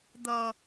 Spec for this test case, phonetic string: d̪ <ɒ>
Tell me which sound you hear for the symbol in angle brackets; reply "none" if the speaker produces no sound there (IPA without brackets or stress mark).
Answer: ʌ